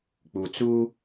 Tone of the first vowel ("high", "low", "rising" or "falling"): low